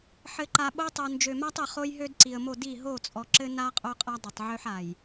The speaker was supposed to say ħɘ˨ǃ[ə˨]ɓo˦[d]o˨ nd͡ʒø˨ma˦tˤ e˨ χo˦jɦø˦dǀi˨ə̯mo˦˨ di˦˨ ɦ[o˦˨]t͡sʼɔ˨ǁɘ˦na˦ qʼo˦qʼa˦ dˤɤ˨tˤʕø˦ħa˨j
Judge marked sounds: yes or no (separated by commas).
no, no, yes